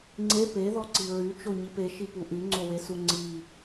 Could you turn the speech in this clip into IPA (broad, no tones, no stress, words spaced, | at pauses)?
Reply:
ŋ͡ǀe peðɔǀi ɹyt͡ʃoɲip eʃipu ʔyŋ͡ǀowesu ŋ͡ǀi